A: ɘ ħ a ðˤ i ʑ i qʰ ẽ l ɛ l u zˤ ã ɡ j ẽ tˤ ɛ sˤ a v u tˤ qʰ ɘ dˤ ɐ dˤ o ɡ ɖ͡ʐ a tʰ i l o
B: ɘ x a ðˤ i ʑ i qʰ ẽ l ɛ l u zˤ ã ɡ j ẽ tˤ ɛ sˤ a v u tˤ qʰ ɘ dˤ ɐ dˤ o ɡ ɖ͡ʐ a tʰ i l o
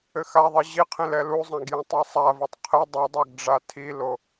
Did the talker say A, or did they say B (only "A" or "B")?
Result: B